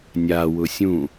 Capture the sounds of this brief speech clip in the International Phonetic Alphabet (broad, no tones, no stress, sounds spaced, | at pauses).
nʲ a w ʊ sʲ ũ